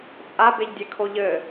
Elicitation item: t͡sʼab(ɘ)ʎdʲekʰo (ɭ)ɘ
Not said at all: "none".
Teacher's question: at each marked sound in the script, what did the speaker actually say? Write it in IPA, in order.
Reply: e, ʎ

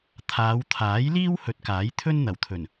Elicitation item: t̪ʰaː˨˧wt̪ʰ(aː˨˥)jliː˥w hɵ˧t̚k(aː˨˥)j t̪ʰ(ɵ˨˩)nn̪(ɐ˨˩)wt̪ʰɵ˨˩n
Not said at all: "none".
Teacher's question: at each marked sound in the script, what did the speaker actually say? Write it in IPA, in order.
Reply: aː˨˥, aː˨˥, ɵ˥, ɐ˨˩

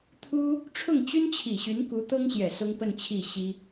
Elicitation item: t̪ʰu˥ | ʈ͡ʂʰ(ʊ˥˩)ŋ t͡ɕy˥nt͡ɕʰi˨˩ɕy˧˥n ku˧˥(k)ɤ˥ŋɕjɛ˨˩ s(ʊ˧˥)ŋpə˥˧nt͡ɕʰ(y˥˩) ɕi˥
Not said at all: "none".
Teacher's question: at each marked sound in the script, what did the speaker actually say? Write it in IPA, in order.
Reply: ʊ˥˩, t̪, ʊ˥, i˥˩

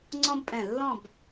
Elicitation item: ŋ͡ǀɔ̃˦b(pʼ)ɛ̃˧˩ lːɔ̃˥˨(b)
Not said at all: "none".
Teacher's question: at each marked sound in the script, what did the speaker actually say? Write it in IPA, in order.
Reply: pʼ, b

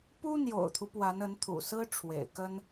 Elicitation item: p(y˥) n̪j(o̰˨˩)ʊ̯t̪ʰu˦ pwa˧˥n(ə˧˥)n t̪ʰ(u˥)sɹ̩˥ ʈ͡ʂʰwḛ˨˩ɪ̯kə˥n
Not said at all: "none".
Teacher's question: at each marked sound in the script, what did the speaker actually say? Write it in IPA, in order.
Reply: u˥, o̰˨˩, ə˧˥, ṵ˨˩

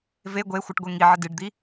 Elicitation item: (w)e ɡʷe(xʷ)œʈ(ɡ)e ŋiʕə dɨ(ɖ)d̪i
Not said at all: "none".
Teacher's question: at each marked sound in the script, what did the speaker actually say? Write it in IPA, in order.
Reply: v, xʷ, ɡʷ, ɖ

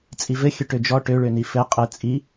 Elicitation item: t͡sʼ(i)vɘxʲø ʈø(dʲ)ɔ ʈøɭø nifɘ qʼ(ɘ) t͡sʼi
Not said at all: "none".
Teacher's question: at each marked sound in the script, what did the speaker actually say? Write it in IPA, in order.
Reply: i, d͡ʒ, ɘ

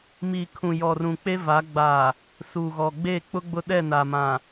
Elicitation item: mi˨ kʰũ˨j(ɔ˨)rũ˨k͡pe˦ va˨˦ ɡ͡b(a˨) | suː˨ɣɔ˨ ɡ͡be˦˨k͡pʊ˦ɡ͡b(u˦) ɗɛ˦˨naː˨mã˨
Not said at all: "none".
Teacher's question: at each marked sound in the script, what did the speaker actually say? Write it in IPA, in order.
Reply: ɔ˨, a˨, ʊ˦

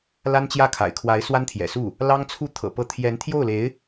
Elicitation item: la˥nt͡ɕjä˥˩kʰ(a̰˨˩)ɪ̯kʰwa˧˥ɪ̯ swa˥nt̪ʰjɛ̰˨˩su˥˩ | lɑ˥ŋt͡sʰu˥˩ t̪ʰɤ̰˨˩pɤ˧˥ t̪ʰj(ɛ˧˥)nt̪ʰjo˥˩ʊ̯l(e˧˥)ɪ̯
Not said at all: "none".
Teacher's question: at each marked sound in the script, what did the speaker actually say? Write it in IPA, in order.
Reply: a̰˨˩, ɛ˧˥, e˧˥

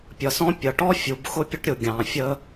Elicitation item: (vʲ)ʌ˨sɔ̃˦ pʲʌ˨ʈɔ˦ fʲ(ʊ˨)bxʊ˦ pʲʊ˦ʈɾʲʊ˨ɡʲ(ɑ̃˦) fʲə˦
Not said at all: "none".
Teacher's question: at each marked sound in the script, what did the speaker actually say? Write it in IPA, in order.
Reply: pʲ, u˨, ɑ̃˨

